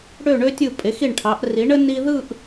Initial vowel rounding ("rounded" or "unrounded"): rounded